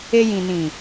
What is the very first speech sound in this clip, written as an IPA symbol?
e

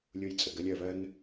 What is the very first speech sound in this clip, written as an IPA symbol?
lʲ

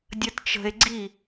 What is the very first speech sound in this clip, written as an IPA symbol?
dʲ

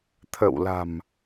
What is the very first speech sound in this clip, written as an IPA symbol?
t̪ʰ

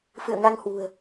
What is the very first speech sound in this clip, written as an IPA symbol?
f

